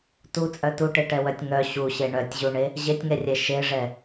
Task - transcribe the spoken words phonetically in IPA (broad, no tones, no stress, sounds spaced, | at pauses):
t u t͡sʼ œ t u ʈ e ʈ ɛ w œ tʲ ŋ œ ɕ u ɕ e ɳ œ tʲ ʑ u ɳ e | ʑ e tʲ ŋ ɛ rʲ ɛ ʃ e ʐ ɛ